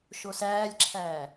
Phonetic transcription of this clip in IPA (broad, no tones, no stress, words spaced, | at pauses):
ʃosæːlʲǁʰæː